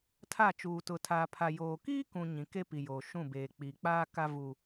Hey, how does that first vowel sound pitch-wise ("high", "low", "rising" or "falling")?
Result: falling